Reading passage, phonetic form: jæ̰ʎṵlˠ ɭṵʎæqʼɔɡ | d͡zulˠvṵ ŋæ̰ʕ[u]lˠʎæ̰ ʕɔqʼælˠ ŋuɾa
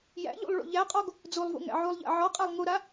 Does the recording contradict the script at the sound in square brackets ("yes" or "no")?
no